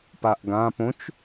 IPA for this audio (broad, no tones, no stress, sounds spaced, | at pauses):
p aː ʔ ɡ ãː p õ t͡ʃ